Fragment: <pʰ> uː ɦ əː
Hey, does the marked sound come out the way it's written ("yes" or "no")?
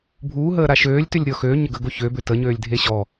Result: no